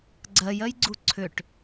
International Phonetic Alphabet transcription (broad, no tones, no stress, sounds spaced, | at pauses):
ɡ͡ǀ ɜ j ɜ j ɡ͡ǀ u ǀʰ ʏ ʈ